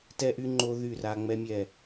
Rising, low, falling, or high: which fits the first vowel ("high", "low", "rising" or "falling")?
high